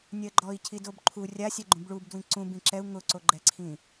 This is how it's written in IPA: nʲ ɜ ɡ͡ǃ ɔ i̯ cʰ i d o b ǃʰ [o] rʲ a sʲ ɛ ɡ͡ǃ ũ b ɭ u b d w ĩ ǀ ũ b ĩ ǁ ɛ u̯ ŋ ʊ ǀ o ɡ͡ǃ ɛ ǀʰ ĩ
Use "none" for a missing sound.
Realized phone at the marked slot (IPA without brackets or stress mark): u